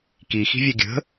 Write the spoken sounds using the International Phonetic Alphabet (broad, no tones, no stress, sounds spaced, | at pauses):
k i x i̤ vʲ œ ɡʲ ə̤